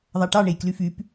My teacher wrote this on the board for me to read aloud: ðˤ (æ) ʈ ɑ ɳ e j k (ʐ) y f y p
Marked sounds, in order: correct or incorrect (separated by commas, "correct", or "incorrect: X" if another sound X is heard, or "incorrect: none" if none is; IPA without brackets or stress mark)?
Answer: correct, incorrect: l